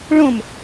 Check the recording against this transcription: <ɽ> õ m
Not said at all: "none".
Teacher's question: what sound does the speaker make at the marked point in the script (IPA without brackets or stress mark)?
ɭ